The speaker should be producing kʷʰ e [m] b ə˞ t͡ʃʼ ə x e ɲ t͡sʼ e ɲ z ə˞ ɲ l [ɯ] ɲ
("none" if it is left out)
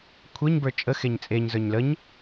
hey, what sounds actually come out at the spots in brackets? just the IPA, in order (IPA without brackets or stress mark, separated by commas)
ɲ, ə